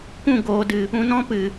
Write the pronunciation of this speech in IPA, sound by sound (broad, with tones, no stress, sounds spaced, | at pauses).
kʷ ũ˦˨ ɡ oː˨ d ɨ˨ | ũ˧ n ɔ̃˦ p ɨ˨